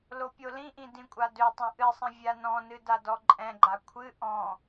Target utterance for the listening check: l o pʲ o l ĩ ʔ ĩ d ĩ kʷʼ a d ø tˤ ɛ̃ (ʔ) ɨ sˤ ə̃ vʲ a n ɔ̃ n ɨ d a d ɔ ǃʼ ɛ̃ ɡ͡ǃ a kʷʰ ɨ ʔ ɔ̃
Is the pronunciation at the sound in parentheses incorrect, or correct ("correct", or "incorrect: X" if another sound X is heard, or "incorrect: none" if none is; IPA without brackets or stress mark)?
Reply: correct